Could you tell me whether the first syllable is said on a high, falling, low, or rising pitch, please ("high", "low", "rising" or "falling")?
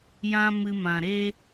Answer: high